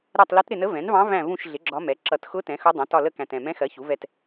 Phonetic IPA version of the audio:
ɾ ɛ˦˨ tˤ l ə˧˥ t ɾ ɪ˦˨ n ə˧˥ v ɛ̃˩˥ n v ɑ̃˧˥ v æ̃˦˨ v ũ˦˨ ʃ ɮ ɪ˩˥ ɡ͡ǁ ɒ˧˥ m ɛ˩˥ ǁ ʌ˨˩ t x ʊ˧˥ t ɛ̃˩˥ x ʊ˧˥ dˤ ɑ̃˩˥ t ɒ˦˨ l ə˦˨ k æ̃˨˩ t ɛ̃˨˩ m ɛ̃˧˥ x ɜ˩˥ ç u˩˥ v ɛ˦˨ t

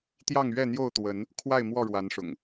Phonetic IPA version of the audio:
t̪ j ɑ˥˨ ŋ ɥ ɛ˥˨ n̪ j o˥˨ ʊ̯ t̪ w ə˨˦ n | kʰ w a˥˨ ɪ̯ m w ɔ˥˨ ɻ w a˨˦ n ʂ ʊ̰˨˩ ŋ

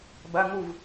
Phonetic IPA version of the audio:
b ɐ˧˥˧ ŋ u˥˩ v

